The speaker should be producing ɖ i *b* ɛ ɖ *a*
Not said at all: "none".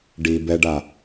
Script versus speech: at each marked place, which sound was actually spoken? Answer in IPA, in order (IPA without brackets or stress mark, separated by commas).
b, a